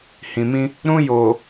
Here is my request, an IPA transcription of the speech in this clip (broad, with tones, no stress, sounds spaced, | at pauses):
h ĩ˨ m ĩ˦ | ɾ ũ˦ j oː˨